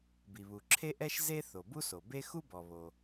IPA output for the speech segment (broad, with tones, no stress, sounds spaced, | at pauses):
b i˩ β u˩ ǁʰ e˥ ʔ ɛ˥ ʃ z e˥ θ o˩ b u˥ s o˩ b e˥ x u˥ b ɔ˩ β o˩